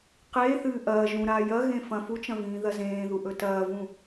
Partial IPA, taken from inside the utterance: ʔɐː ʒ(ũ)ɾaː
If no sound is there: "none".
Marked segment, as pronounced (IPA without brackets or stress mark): ũ